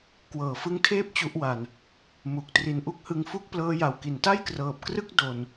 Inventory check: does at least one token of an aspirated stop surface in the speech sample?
yes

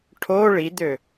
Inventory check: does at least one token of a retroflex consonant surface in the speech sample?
yes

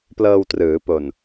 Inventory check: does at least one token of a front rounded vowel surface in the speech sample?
no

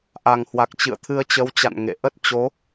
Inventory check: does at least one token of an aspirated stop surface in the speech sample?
yes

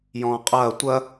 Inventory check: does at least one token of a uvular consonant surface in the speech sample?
yes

